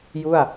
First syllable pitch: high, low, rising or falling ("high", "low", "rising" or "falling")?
falling